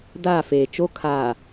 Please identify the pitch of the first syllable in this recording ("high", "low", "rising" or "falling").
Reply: falling